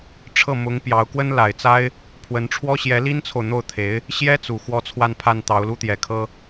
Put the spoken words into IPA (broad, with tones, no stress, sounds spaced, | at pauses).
ʈ͡ʂʰ ɤ˥˩ m ʊ˧˥ ŋ p j ɑ˧˥ ʊ̯ k w ə˥ n l a˨˩ ɪ̯ t͡s a˥ ɪ̯ | pʰ w ə˧˥ n ʈ͡ʂʰ w ɔ˥ ɕ j ɛ˧˥ l i˥ n t͡sʰ o˨ ʊ̯ n̪ o˥˩ ʊ̯ t̪ʰ e˧˥ ɪ̯ | ɕ j ɛ˥ t͡s u˨˩ x w ɔ˥ t͡sʰ w a˥˧ n pʰ a˥˩ n t̪ ɑ˧˥ ʊ̯ l u˥ t̪ j ɛ˨˩ kʰ ɤ˥